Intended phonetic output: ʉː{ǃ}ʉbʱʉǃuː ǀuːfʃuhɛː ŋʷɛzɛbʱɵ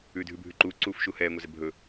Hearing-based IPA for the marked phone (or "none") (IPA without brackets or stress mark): dʱ